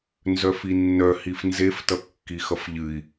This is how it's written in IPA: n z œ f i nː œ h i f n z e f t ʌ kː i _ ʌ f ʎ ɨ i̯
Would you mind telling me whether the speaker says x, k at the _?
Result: x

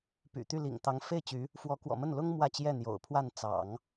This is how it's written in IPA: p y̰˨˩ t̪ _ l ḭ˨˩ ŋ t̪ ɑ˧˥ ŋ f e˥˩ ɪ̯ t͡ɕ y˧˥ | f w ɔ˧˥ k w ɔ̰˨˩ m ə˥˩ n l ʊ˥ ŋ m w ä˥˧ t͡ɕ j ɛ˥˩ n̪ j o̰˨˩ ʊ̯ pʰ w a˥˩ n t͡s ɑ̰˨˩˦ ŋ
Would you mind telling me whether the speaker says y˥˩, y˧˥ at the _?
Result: y˥˩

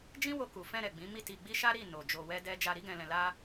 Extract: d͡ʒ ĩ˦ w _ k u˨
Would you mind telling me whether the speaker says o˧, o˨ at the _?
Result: o˧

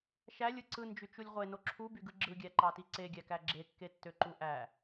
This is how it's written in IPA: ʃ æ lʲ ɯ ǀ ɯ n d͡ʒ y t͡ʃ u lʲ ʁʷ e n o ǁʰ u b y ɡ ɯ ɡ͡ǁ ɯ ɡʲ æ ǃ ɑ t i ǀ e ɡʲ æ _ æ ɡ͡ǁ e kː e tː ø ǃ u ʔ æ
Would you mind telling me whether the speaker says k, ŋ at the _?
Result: k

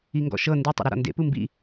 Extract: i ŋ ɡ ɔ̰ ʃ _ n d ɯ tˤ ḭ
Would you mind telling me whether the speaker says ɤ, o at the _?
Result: ɤ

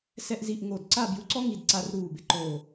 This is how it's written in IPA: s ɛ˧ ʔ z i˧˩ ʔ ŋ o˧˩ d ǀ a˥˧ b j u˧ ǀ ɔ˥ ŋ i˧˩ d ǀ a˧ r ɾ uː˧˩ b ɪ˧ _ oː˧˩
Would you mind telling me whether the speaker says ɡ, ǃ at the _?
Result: ǃ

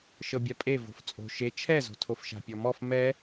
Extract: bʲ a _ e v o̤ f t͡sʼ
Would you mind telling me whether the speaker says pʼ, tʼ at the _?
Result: pʼ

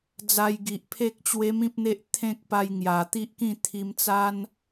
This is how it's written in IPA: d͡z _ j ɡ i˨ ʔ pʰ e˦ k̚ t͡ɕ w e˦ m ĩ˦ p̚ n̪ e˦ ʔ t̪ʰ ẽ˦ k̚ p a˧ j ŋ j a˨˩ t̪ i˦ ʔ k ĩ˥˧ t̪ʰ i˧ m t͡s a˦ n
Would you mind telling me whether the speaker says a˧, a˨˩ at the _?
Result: a˧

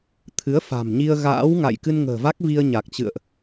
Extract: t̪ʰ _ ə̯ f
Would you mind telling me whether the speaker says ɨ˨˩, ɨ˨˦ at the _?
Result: ɨ˨˦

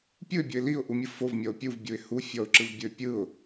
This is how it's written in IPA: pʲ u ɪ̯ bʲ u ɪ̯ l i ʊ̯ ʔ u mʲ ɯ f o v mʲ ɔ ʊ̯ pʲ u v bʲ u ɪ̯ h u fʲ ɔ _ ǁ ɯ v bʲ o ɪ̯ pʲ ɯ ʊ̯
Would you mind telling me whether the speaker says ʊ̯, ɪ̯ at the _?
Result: ʊ̯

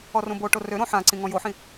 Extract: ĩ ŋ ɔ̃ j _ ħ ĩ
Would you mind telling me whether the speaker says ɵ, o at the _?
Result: o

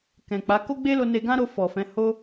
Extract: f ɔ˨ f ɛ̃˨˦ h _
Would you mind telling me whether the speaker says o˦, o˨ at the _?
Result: o˦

